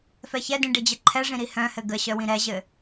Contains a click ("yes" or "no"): yes